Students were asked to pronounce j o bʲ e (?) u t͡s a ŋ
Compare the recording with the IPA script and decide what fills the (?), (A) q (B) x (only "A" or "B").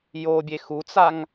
B